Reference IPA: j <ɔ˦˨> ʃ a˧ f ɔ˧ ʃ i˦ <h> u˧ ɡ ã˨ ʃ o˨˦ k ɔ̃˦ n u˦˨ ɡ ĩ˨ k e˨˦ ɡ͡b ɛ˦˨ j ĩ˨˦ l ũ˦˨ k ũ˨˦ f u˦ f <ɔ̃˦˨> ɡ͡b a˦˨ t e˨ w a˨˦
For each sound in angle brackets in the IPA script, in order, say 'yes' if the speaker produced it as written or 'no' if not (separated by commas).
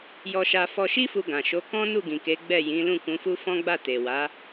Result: no, no, no